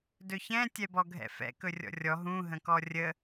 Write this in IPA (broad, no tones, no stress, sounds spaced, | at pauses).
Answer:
d ɵ ç ɛ̃ tʲ ɛ b ɔ ɡʱ ɛ̰ f ɛ̰ k ɵ rʲ ɔ̰ rʲ ɔ ɦ ũ ɦ ə̃ k ɔ rʲ ə